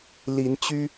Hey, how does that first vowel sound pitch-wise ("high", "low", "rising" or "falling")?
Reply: rising